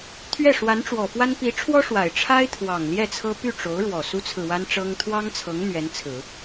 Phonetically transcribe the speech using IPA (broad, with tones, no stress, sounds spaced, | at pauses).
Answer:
t̪ʰ ɥ ɛ˥˩ ʂ w a˧˥ n ʈ͡ʂ w ɔ˨˩ f w a˥ n p i˧˥ ʈ͡ʂʰ w ɔ˥ ʂ w a˨˩ ɪ̯ ʈ͡ʂʰ a˥ ɪ̯ t̪ʰ w ɑ˨˩ ŋ l j ɛ˥˩ t͡sʰ ɤ˥ p y˥˩ ʈ͡ʂ o˧˥ ʊ̯ ɻ w ɔ˨˩ s u˥ t͡sʰ ɹ̩˨ w a˥ n ʈ͡ʂ ɤ˥ ŋ t̪ʰ w ɑ˥ ŋ t͡sʰ ɤ˧˥ ŋ n̪ ɥ ɛ˧˥ n t͡sʰ ɹ̩˨˩˦